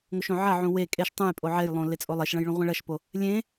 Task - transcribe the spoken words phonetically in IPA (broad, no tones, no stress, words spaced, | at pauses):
ŋoʃõʕɐʕũ we kʼeʃ tˤũj pʼoʕejlˠõ let͡sʼolˠeʃɭɐ̃j ɭũʁʷẽɭɐʃpo | lʲẽ